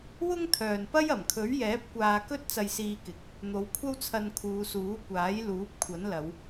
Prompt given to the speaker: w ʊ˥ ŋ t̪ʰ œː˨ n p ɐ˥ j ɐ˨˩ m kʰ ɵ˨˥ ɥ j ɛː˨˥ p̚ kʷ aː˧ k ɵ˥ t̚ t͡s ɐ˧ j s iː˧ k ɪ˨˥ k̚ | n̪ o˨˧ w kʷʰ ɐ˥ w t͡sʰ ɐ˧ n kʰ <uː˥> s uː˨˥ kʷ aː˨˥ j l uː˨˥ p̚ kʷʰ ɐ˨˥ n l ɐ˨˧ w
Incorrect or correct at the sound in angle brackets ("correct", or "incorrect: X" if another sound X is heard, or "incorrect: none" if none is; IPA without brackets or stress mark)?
incorrect: uː˨˧